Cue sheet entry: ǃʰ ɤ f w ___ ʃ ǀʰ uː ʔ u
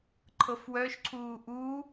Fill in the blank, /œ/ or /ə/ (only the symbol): œ